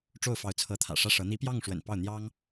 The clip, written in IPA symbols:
ʈ͡ʂ o˥˩ ʊ̯ f ɑ˧˥ ʊ̯ t͡sʰ ɤ˧˥ t̪ʰ ä̰˨˩ ʂ ä˥˩ ʂ ɤ˧˥ n̪ i˧˥ p j ɑ˥˩ ŋ ʂ w ə̰˨˩ n p ɑ˥˩ ʊ̯ n̪ j ɑ˥ ŋ

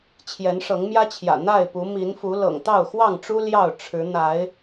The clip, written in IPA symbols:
t͡ɕʰ j ɛ˨˦ n ʂ ɤ˨˦ ŋ m j ä˦ t͡ɕʰ j ä̰˨˩ n̪ a˥˨ ɪ̯ p u˨˦ m i˨˦ n f u˨˦ l ɤ̰˨˩ ŋ t̪ ɑ˥˨ ʊ̯ x w ɑ˥˨ ŋ ʈ͡ʂ u˦ l j ɑ˥˨ ʊ̯ ʈ͡ʂʰ ɻ̩˨˦ n̪ a˨˦ ɪ̯

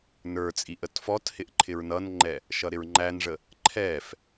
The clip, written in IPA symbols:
n ə˞ t͡sʼ i ʔ ə t f ɔ t h ɪ ʔ ǃʰ ɪ ɹ n ʌ n ŋ͡ǃ ɛ | ʃ ʌ ɾ ɪ ɹ ŋ͡ǃ æ n ʐ ə | ǃʰ ɛ f

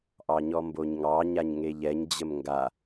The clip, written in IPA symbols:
ʔ ɑ ɲ ɔ m b o ɲ ŋ ɑ ɲ a ɲ ŋ e ʎ ɛ ɲ d͡ʑ ə m ŋ ɡ a

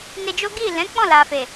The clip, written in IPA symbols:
n e˧ d͡ʒ o˦ ɡ i˦˨ l ɛ̃˨˦ k͡p ɔ̃˦˨ l a˨ f e˨

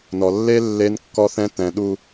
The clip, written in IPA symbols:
n ɔ˨ lː e˦ lː e˦ n kː ɔ˦ θ ɛ̃˦ t ɛ̃˨ ɗ u˨

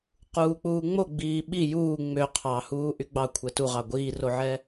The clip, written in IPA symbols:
q uː k͡p uː ŋ͡m o ɡ͡b iː ɓ i j uː ŋ͡m ø qʰ ɑ h uː ʔ y ɡ͡b ɑ kʷʰ ɛ t u ʁ ɑ ɡʷ iː r o ʕ ɛ

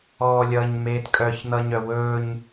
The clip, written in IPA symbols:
ɔː lʲ ʌː ɲ m eː t kʼ œ ç n̪ ʌ ɲ œ w ɵː ɲ

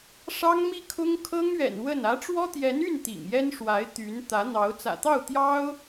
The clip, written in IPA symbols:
ʂ ɑ˥ ŋ m i˥˩ kʰ ʊ˥ ŋ kʰ ɤ˥ ŋ ɥ ɛ̰˨˩ n w ə˥˩ n ä˧˥ ʈ͡ʂ w ɔ˥ t̪ j ɛ˧˥ n y˥˩ n t̪ ḭ˨˩ ŋ j ɛ˥ n ʂ w a˧˥ ɪ̯ t̪ y˧˥ n t̪ ä˧˥ n̪ ɑ˧˥ ʊ̯ t͡s ä̰˨˩ t̪ ɑ˥˩ ʊ̯ t̪ j ɑ˥ ʊ̯

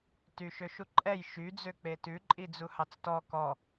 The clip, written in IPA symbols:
t y ʃ ø ʃ u ǃʼ ɛ j ʃ y d͡z ø k͡p e t ʉ ǃʼ i d͡z u h ɑ t͡s t ɔ k ɔ

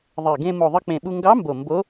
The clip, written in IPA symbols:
ðˤ e˨˩ ɡ ẽ˧ m o˨˩ ðˤ ɯ˧ k͡p ẽ˨˩ ɓ u˧ ŋ ɡ ɑ˧˥ m b o˨˩ m b o˧˥

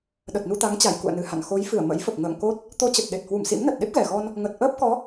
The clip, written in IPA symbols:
ɗ ə˨˩ t̚ n u˧ t̪ a˨˦ ŋ t͡ɕ a˧˩ j k ṵ˧˨ ə̯ n ɨ˧˩ h a̰˧˨ n x o˨˦ j f ɨ˧˩ ə̯ m ə̰˧˥ j f ə˨˩ p̚ ŋ ə̰ː˧˨ ŋ k o˦˥ t̚ | t̪ o˧ t͡ɕ ə˨˩ t̚ ɗ e˨˩ t̚ h w u˧˩ m s ḭ˧˥ m n ə˨˩ t̚ ɗ e˦˥ p̚ ɣ ɛ˨˩ ɣ ɔ˧ n | ŋ ə˨˩ t̚ ʔ əː˦˥ p̚ k ɔ˨˦

